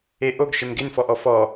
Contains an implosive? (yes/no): no